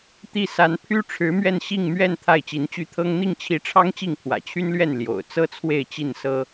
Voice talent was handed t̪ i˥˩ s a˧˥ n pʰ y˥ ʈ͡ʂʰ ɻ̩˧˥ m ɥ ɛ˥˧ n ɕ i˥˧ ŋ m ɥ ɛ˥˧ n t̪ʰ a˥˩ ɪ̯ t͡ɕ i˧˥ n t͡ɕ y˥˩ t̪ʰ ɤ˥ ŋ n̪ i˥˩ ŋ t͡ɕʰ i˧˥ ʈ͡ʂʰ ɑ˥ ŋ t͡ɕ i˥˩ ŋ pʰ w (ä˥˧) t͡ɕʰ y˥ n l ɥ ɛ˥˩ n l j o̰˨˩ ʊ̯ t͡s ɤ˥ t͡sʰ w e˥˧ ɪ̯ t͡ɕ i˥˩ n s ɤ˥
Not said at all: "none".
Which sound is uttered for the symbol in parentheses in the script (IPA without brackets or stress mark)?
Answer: ä̰˨˩